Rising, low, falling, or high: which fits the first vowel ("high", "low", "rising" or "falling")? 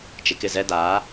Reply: low